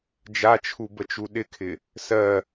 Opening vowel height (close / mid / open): open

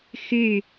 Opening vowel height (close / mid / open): close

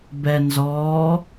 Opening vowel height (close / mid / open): mid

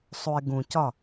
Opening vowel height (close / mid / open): close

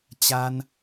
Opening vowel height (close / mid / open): open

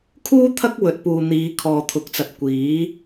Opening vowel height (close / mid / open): close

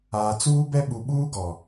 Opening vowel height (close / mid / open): open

